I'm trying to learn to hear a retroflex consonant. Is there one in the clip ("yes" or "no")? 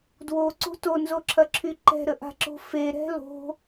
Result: no